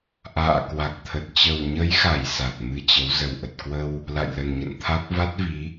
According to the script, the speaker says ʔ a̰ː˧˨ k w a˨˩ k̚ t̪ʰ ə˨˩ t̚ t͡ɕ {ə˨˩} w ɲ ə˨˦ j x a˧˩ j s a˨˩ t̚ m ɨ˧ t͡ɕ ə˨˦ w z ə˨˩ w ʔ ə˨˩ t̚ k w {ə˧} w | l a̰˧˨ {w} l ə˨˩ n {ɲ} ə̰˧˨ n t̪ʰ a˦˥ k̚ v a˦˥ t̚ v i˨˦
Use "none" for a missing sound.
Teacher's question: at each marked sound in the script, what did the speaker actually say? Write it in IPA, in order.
ə˨˩, ə˧, j, ɲ

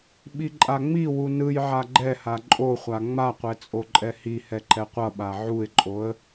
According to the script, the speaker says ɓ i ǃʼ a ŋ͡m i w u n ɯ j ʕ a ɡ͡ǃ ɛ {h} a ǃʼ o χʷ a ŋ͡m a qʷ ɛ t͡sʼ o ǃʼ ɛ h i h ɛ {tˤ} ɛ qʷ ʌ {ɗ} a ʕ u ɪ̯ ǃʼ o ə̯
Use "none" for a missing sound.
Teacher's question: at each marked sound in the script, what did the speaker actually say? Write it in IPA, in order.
h, ǃ, ɓ

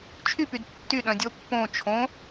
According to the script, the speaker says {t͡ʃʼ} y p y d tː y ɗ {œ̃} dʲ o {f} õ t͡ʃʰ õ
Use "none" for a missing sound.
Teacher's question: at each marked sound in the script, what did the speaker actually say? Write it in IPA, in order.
t͡ʃʰ, œ̃, pː

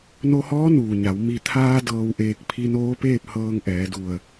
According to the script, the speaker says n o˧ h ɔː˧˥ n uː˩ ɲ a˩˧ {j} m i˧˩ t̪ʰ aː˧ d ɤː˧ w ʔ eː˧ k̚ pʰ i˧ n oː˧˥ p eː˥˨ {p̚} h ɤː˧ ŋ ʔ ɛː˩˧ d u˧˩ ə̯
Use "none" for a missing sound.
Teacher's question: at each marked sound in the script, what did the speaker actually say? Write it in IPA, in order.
w, p̚

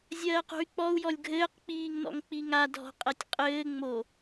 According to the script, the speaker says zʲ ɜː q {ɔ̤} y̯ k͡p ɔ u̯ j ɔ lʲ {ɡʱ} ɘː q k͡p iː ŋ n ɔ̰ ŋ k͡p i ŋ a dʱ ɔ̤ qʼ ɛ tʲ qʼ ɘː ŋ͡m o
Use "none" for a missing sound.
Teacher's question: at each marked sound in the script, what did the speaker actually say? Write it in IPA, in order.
o̤, ɡʱ

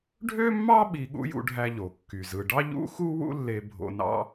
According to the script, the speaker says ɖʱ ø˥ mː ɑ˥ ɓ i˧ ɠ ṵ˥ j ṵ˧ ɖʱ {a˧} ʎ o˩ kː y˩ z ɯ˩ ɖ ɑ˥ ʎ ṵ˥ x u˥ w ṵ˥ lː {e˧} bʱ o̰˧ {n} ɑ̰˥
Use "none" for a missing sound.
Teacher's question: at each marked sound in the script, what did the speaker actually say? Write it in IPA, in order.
æ˧, e˧, n

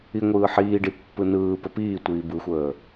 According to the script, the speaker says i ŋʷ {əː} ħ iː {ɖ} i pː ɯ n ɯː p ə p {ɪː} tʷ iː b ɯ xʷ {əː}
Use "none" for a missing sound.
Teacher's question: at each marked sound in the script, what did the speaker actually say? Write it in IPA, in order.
ɯː, ɖ, iː, əː

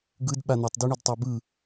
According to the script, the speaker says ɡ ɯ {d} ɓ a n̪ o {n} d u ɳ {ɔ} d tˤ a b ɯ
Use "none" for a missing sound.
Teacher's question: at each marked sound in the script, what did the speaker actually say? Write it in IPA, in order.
d, tˤ, ɤ

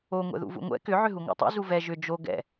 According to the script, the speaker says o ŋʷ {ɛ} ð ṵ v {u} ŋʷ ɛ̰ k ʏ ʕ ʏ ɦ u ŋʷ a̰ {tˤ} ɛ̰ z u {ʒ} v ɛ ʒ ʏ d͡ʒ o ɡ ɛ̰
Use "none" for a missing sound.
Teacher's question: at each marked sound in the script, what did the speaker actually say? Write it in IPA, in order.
ɛ̰, ṵ, tˤ, none

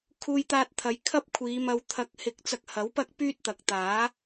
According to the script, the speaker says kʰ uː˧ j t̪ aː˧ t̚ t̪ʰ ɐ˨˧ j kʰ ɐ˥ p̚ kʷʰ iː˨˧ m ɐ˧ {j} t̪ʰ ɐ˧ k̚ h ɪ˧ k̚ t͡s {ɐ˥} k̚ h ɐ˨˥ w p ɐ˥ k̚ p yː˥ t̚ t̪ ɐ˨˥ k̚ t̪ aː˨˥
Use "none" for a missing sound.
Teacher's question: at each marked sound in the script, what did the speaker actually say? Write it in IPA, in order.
w, ɐ˧

